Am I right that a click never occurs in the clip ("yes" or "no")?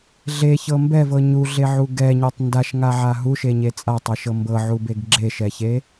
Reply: no